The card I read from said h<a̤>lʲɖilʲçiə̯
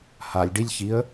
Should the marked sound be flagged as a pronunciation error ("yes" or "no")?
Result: yes